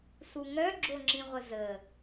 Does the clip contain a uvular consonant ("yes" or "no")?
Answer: yes